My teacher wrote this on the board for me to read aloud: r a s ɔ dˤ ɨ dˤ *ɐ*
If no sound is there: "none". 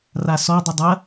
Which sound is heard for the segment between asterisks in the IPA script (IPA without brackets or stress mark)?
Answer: ɐ